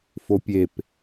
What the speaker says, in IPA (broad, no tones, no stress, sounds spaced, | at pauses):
f o pʲ e p